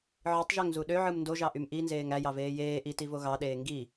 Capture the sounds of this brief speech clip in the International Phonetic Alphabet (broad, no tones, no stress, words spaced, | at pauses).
ʕɯtˤʒøŋzu ɗøʕɯm ndoʒɑʔym ʔinzeːŋ æjɑveː jeː ʔitivo ɣɑɗeː ŋɡi